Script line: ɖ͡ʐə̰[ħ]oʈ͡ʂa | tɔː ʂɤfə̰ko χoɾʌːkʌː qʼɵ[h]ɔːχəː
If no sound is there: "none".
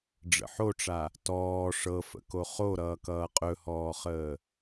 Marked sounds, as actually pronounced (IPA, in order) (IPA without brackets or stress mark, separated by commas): ħ, h